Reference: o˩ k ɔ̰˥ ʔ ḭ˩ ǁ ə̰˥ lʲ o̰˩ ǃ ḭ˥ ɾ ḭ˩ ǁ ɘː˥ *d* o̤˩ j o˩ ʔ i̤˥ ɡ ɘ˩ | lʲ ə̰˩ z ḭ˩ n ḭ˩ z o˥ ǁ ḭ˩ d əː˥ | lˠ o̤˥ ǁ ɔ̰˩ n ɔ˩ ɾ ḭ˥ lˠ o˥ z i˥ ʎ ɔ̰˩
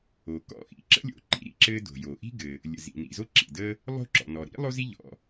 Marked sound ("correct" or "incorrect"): correct